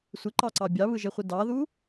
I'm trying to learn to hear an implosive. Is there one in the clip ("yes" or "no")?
no